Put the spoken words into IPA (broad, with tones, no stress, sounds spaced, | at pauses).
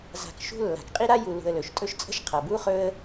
z a̤˨ k ʃ ṳ˦ lː a̤˩ k qʼ i˥ ɾ a˥ j u˨ l ṳ˨ ə̯ l ɵ˩ ʃ tʼ ɵ˦ ʃ t͡sʼ ə̤˦ ʃ qʰ ʌ˩ b u˥ χ ɵ˦ ə̯